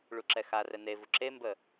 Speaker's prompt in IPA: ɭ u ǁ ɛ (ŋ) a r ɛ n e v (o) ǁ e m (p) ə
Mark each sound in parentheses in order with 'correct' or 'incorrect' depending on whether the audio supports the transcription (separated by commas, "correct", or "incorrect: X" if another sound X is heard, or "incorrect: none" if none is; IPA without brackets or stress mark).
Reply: incorrect: x, incorrect: u, incorrect: b